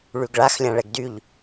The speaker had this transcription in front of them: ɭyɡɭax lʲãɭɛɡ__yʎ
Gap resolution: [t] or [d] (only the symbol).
d